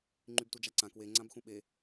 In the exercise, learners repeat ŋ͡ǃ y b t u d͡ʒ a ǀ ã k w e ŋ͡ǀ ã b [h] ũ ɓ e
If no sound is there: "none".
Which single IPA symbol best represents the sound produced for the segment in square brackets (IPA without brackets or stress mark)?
x